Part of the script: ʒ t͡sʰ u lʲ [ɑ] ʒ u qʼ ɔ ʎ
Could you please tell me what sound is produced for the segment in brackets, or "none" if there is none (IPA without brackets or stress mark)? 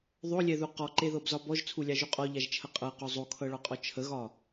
ɑ